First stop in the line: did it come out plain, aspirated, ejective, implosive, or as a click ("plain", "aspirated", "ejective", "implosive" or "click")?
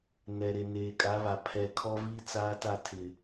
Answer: ejective